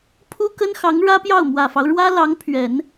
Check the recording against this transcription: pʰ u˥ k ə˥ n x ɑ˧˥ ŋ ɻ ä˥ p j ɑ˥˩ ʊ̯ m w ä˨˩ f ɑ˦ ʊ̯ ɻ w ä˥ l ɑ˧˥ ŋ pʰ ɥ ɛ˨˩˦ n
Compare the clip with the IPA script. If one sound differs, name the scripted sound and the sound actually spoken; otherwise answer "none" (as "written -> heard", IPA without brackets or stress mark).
none